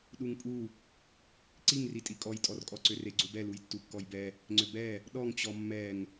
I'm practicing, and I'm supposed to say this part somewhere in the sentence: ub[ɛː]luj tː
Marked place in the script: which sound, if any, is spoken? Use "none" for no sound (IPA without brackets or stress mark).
ɛ